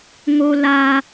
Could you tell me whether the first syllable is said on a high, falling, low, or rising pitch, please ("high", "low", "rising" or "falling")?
high